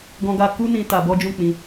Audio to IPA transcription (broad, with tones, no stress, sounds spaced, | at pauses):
ɡ ɔ̃˦ ɡ a˦ k u˦ n ĩ˧ t a˧ b ɔ˦ d͡ʒ ũ˦˨ k͡p ĩ˧